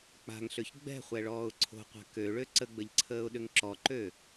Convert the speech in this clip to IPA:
k͡p a̤ ŋ ɬ ø ç ɡ͡b ɛ̤ χʷ ɛ ɭ ɔː ʊ̯ ǀʰ o̤ qʷ a̤ k ø ɭ ø ǀ ə ɡ͡b ə ʎ ǀʰ əː ʊ̯ ɗ ʏ ŋ ǁ ɔ ǃ ø

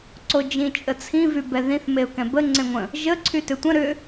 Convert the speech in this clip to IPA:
ǀ o d͡ʒ ĩ t͡ʃʼ ə t͡sʰ ĩ v y b ɛ ð ĩ θ m e ʊ̯ k ɛ̃ b ə ŋ͡ǀ ẽ ŋʷ ə̃ | ʒ ə ǀʰ y t ʏ tʷ ə̃ ɾ ʏ

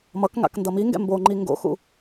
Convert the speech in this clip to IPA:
m ʌ k ŋ a̰ k n d ʌ m i ŋ ɡ ɛ̰ m b o ŋ͡ǃ i ŋ ɡ o̰ x ṵ

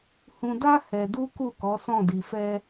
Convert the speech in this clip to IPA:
h ũ˧ d a˦ h ɛ˧ d u˦ k u˦˨ k ɔ˨˦ s ɔ̃˦˨ d i˧ f ɛ˦

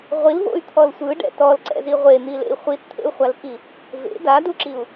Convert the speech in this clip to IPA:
ʁʷ i l v o̰ y̯ t̪ʰ ɔ l sʷ ɯ ɖ ɛ̰ t ɔ l ǀ ɛ̰ z i ʁʷ e n̪ i l ḛ i̯ χʷ i t t̪ʰ ḛ u̯ χʷ a l k i | v ḛ d a d u ǁ i u̯

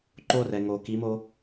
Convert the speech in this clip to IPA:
ǃ o r ɛ ŋ o k i m o

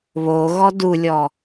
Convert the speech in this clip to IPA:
β o ɣ ɔ d u lʲ ɔ

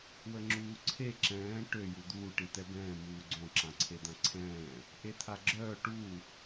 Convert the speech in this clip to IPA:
w ə ŋ͡ǁ uː ǀʰ e ǁ ɛ̃ː ʈ ø j u d̪ uː ʈ i t̪ ɛ b ɛ̃ː m uː ɡ͡ǀ õ ǁ ã ǀʰ e d̪ ã ǀʰ ɛ̃ː | ʔ e t̪ʰ a ɡ͡ǁ œː ʈ u

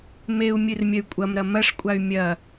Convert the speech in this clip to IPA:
m e u̯ mʲ ɨ r mʲ ɐ y̯ kʷʼ ɐ m ɾ ɐ m ɐ ʂ kʷʼ a y̯ mʲ ɐ

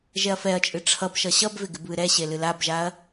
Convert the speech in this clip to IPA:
ʒ ɛ ɐ̯ f ɛ ɐ̯ t͡ʃʼ ɨ ʈ͡ʂʰ ʌ b ʃ ʌ ɕ ʌ b v ɪ ɡ ɪ b β ɨ ɾ ɛ ɕ e l ɨ l a b ʒ a ɐ̯

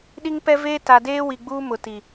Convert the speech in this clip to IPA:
ɗ i˦ ŋ p ɛ˦ v eː˦ t a˨ d eː˦ w i˨ ɡ͡b uː˦ m ʊ˨ t i˨

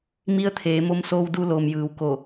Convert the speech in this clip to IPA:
m i˧ ə̯ t̪ʰ eː˩˧ m o˧ m s oː˧ w d u˧ l oː˩ m j ɯː˩˧ w k o˧˩

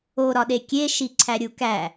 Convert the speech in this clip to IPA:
o ɾ ɒ ɗ e kʲ e ʃ i ǀʰ æ ɾʲ u k æ

